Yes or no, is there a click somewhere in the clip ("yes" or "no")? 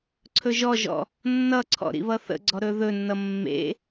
yes